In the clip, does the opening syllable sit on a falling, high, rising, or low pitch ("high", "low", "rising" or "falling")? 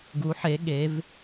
rising